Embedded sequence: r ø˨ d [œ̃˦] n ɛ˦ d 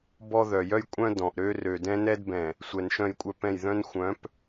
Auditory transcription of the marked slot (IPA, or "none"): ɛ̃˦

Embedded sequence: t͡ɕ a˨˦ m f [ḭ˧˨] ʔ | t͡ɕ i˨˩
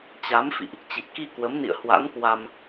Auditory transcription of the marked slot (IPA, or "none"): ḭ˧˨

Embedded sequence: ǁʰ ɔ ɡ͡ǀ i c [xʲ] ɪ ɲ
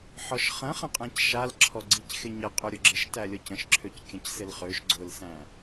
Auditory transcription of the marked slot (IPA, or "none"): x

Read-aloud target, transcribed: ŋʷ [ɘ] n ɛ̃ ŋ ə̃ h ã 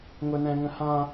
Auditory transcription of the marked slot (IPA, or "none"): ɘ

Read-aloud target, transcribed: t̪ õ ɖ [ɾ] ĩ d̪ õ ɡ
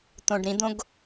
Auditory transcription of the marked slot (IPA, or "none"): ɾ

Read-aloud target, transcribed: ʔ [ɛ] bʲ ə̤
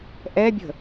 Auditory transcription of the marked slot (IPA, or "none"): ɛ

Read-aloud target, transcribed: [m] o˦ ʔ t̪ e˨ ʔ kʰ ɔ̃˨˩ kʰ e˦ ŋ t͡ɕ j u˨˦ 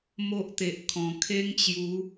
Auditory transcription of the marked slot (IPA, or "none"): m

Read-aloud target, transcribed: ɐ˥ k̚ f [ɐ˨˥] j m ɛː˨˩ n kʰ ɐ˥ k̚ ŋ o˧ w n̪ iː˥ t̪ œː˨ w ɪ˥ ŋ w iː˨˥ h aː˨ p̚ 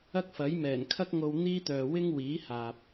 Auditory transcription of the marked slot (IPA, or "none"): ɐ˨˥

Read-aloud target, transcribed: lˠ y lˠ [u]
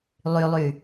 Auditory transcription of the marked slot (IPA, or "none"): y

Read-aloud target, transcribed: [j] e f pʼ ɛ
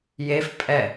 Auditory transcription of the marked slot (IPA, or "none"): j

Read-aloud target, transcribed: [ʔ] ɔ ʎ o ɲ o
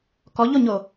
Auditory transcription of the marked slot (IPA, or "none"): k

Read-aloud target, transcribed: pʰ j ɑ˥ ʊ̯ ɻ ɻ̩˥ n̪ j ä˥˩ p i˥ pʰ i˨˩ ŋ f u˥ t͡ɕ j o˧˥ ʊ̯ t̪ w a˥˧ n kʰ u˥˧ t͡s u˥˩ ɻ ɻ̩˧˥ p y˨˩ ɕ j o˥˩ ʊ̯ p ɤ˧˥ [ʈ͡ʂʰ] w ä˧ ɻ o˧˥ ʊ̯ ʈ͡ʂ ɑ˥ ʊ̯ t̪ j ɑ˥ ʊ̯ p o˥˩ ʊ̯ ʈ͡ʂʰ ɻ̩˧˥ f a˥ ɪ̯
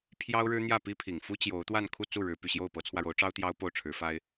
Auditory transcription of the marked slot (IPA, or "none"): t͡sʰ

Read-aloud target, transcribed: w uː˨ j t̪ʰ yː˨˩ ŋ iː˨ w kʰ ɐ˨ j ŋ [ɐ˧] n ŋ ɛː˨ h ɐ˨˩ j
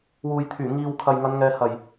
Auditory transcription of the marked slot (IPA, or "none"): ɐ˨˧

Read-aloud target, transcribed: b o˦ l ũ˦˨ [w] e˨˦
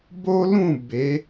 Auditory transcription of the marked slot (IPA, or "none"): b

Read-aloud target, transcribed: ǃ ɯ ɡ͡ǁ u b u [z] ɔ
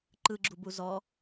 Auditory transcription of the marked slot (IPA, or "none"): z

